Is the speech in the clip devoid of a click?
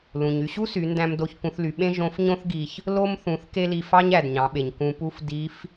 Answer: yes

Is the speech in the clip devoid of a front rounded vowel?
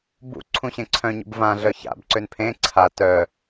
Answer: no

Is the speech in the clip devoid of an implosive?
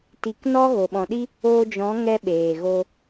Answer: no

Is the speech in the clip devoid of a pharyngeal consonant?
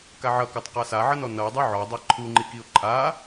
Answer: no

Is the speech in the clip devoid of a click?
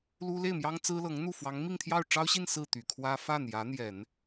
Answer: yes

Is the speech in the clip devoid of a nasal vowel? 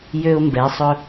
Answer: yes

